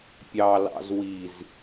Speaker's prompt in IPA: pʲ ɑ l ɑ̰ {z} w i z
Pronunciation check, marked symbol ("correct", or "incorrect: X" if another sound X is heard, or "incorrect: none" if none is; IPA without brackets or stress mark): correct